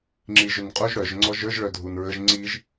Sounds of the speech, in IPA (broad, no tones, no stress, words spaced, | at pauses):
ŋ͡ǁiʒʏnqʼuʒ ɽœʒ ŋ͡ǀɔʒə˞ʒ ɭœdʱunɹəʒ ŋ͡ǀiʒ